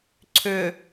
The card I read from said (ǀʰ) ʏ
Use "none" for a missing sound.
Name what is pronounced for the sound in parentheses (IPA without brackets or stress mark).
ǀʰ